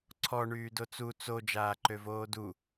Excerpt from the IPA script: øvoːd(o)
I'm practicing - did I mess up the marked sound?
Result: yes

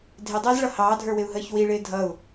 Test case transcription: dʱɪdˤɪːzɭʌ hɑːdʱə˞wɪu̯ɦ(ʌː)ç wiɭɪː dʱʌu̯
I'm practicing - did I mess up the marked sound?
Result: yes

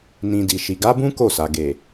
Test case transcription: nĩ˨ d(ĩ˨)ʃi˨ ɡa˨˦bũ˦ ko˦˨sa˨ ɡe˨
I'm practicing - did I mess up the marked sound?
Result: yes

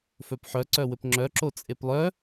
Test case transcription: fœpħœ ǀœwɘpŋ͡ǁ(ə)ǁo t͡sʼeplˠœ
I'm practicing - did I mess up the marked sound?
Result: yes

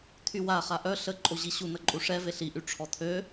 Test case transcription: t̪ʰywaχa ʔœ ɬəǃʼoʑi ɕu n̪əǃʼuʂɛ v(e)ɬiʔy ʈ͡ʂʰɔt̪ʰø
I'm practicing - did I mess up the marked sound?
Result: no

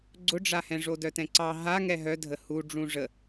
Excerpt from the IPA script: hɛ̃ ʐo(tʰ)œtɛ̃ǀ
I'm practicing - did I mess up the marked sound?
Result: yes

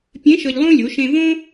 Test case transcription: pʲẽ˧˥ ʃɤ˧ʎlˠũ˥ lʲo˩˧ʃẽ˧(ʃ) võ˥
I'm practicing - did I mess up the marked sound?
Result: yes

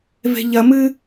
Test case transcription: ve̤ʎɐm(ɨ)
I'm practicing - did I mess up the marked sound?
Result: no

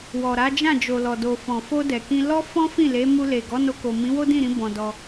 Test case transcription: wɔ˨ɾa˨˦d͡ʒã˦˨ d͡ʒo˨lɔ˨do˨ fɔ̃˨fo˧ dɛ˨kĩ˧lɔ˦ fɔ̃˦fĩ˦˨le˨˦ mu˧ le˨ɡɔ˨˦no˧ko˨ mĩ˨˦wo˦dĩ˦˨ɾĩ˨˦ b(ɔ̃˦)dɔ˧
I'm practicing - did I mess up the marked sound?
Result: yes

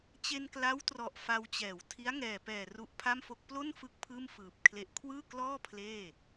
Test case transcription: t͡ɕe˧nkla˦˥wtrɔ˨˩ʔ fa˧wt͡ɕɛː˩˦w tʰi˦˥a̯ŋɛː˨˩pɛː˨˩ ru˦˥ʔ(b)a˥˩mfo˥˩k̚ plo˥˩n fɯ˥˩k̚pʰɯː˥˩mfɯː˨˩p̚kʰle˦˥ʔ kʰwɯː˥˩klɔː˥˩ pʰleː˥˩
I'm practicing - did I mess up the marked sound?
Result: yes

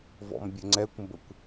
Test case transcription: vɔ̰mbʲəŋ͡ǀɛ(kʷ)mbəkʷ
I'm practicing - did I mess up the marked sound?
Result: no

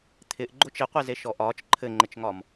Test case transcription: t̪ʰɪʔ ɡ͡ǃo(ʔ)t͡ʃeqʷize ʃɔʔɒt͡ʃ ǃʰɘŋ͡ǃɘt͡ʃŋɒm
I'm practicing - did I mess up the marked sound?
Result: yes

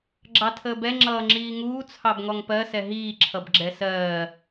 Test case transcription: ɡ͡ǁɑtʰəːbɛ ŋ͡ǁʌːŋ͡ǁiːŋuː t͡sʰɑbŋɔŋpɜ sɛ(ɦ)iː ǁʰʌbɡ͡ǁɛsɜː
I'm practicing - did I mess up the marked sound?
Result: no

